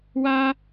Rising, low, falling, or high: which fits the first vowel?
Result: high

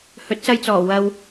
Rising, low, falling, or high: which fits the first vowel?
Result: rising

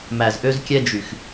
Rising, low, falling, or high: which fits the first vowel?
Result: low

